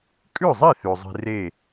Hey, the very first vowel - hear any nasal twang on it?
no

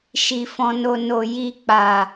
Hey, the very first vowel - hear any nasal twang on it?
no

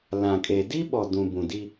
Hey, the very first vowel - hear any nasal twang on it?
yes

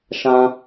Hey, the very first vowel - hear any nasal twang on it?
yes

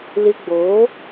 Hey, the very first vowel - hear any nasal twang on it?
no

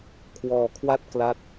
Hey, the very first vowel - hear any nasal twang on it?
no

